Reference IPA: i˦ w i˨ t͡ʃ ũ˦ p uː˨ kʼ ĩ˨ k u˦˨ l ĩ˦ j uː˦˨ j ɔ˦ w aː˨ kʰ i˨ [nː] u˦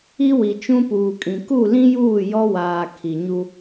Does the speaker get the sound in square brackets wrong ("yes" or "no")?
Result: yes